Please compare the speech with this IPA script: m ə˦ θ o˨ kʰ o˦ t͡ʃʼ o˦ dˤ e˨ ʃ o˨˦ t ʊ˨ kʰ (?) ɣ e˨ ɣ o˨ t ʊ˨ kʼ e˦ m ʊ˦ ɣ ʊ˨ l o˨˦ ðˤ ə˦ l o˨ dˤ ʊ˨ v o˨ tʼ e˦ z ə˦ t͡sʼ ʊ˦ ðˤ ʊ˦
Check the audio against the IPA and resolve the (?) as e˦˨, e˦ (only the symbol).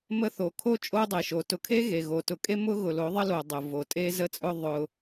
e˦